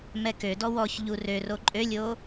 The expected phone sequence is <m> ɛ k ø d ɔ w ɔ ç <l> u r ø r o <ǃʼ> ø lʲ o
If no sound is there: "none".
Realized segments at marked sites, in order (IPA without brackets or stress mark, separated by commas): m, ʎ, ǃʼ